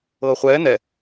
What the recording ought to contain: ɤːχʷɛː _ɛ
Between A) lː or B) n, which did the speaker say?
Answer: B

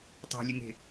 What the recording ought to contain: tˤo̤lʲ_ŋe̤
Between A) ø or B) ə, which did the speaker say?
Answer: B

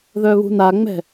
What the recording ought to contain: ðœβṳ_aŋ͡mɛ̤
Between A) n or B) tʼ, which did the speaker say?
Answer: A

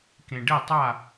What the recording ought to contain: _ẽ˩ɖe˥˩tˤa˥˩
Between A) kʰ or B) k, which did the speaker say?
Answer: B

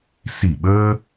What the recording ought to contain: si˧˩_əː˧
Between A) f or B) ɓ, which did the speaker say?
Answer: B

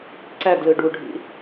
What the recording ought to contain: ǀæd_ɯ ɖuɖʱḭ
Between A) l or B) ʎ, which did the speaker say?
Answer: A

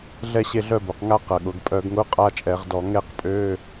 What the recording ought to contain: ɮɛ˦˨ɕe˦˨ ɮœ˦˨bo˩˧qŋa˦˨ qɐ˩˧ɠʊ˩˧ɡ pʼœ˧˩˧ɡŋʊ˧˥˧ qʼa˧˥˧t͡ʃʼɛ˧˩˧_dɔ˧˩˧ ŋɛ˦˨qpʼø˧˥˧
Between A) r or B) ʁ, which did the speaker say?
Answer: B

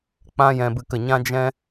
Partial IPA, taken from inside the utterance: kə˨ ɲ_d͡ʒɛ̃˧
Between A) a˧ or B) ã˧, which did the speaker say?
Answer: B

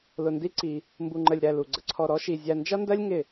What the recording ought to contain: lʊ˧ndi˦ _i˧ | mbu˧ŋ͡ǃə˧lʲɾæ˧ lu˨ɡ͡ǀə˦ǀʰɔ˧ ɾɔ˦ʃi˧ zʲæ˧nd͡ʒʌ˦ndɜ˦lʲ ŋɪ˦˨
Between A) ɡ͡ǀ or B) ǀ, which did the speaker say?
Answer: B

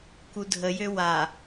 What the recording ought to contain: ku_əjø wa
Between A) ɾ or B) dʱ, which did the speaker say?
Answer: B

